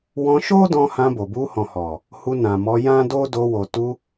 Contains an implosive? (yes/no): no